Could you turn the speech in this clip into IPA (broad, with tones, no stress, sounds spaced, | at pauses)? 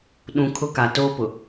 ɗ ũ˨ kʰ ʊ˦ k a˨ t oː˦ p ʊ˨